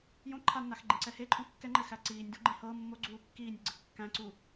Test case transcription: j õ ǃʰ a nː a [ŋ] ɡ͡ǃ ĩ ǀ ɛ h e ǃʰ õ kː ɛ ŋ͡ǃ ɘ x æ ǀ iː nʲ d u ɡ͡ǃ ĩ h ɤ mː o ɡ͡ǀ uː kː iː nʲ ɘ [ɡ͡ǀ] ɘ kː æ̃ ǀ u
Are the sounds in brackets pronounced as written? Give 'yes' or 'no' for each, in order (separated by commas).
no, yes